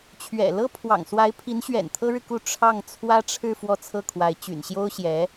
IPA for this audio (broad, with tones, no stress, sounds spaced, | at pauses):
t͡ɕʰ ɥ ɛ̰˨˩ l ɤ˥ pʰ w ɑ̰˨˩ ŋ s w a˧˥ ɪ̯ pʰ i˧˥ n ɕ ɥ ɛ̰˨˩ n t̪ʰ ɤ˥ ɻ ɻ̩˨ k u˥˧ ʈ͡ʂʰ ɑ˥˩ ŋ t͡sʰ w ä˥ ʈ͡ʂʰ ɻ̩˥˧ f w ɔ˥˧ t͡sʰ ɤ˥˩ kʰ w a˧˥ ɪ̯ t͡ɕ y̰˨˩ n ɕ j o˥ ʊ̯ ɕ j ɛ˧˥